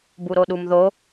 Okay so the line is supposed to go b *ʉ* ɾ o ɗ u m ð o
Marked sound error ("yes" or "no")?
yes